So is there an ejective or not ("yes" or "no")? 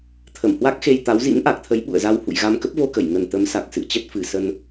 no